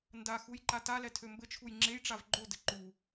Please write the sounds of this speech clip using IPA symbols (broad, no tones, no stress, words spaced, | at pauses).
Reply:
ndaxuj ǃatalɛ tʰømbɘt͡ʃʰuj ŋ͡ǁejʈ͡ʂav ɡ͡ǃodɘ ǃu